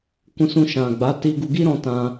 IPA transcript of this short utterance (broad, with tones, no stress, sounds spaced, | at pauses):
k ũ˧ s ũ˧ ʃ ã˨ ɡ͡b a˨˦ t i˧ ɡ u˧ ɡ i˦ ɾ ɔ̃˧ t ã˧